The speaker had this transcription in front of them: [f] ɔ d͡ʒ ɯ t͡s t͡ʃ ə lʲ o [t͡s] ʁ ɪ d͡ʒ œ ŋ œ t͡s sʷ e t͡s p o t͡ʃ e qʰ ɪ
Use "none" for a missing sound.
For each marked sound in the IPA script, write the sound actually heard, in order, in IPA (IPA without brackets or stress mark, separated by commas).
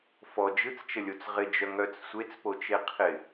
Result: f, t͡s